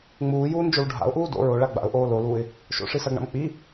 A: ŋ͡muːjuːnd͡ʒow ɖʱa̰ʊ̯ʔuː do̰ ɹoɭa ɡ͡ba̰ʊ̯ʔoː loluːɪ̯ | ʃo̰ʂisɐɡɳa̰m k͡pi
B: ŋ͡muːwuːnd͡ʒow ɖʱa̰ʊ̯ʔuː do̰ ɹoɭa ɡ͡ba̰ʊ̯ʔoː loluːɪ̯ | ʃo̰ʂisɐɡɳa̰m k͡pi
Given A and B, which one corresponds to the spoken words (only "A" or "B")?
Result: A